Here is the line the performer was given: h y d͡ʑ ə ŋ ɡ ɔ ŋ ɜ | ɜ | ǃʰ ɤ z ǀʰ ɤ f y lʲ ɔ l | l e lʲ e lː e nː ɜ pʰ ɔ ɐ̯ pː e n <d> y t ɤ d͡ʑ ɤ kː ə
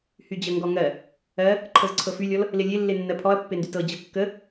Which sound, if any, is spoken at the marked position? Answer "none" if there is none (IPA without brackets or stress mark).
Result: d